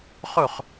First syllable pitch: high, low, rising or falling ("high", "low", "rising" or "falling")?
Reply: falling